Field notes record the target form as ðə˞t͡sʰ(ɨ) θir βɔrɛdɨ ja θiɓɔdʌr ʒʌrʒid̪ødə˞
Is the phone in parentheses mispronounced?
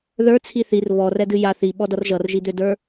yes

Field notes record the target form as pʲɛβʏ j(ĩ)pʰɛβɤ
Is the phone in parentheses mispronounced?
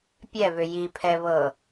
yes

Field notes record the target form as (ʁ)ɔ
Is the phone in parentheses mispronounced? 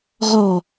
no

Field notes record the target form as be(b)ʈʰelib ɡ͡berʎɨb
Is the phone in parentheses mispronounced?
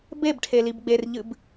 no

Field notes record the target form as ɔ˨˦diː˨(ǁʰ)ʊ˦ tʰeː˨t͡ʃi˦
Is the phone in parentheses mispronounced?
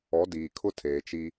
yes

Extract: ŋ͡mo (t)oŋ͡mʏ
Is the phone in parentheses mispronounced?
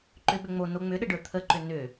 yes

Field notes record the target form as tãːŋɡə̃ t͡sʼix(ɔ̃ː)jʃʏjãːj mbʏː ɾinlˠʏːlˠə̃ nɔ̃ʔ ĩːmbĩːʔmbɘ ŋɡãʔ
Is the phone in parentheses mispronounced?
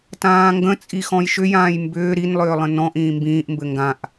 yes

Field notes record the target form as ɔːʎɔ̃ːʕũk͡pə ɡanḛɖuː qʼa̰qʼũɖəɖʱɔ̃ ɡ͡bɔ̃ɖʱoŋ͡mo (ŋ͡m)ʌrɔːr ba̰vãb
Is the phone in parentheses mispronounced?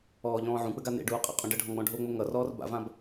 yes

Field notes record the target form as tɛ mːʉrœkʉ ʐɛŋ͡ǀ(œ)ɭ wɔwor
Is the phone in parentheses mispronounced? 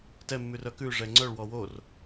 no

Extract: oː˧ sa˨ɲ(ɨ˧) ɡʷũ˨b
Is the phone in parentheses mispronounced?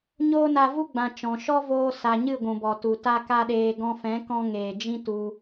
yes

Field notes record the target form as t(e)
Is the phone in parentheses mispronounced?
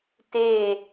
no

